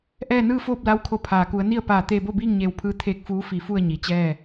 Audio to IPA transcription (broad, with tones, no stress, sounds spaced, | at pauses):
ʔ ɛː˥˨ n ɯː˥˨ f oː˥˨ p̚ l a˧˥ w kʰ o˧˩ pʰ aː˩ k u˩˧ ə̯ n i˥˨ ə̯ p aː˧˩ t̪ eː˧ b o˥˨ b iː˥˨ ŋ ɲ eː˧˩ w pʰ ɯː˧ t̪ʰ eː˧ k̚ f uː˧˥ f i˧˩ f u˥˨ ə̯ ɲ i˩˧ t͡ɕ ɛː˥˨